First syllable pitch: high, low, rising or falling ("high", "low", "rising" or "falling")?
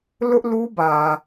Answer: high